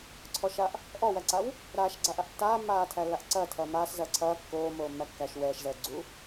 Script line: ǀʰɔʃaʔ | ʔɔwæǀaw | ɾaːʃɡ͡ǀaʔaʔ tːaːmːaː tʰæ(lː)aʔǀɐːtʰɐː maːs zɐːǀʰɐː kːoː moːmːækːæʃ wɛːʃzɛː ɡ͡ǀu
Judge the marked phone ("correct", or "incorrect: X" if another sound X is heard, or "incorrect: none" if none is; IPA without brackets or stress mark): correct